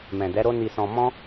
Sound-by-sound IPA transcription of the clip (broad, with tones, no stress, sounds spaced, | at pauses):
m ɛ̃˨ d ɛ˨˦ ɾ o˦ n i˧ s ɔ̃˧ m ɔ̃˦